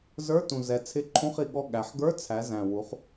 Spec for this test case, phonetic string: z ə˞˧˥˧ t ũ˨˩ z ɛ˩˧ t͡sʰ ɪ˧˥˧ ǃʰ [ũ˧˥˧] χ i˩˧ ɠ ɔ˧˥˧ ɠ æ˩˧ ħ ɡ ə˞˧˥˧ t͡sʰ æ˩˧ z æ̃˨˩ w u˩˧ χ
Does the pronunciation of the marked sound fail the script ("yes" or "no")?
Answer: no